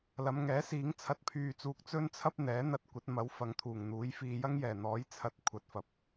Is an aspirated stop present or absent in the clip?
present